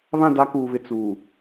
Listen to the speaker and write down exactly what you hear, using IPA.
βã˦˨da˦kuː˨βɪ˨ t͡suː˨

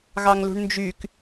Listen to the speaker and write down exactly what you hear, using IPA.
ɣɑŋlṳɳnd͡ʒyk

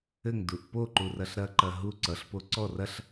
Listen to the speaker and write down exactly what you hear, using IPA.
ɘŋduʔ poǃurɐɬ ɾɐǃɐ ɦu ǀʌɬpo ǀɔ rɐɬ

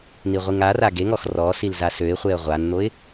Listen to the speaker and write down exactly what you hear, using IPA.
niʁʷiŋara ɡeŋɔx rɔsil zasøɪ̯χʷeə̯ ʁʷann̪oɪ̯

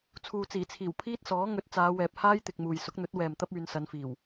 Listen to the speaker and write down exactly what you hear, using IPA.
t͡sʰuː˨t͡siː˨˩t͡sʰiː˨˩w pʰiː˥t̚sɔː˨˥ ŋɵ˨˥t̚t͡saː˨˧ wɛː˨p̚haː˥jt̪ɪ˨k̚ muː˨jsʊ˨˥k̚n̪ɵ˨˥t̚ wɛː˨mt̪ɐ˥p̚ yː˨˧nsɐ˨˧nfiː˨˩w

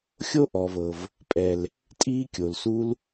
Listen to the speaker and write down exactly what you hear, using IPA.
xʲo˦ʔɔ˨vɤ˨v | pʼɛ˨l | tʼiː˦kʲo˨l su˧l

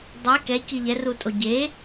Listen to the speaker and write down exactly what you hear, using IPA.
dˤe kɛ ciʎɛrutʼo ɟe

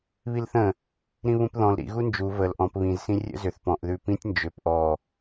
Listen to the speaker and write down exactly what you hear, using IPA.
βilθə̃ | ɾĩβũpðɔ̃l ɾḭ ɣund͡ʒu vəl ʔɔ̃p βĩz sĩrʲə̰zʏθ pɔ̃ʔ ðʉpĩtʲ nd͡ʒʏp ʔɔ

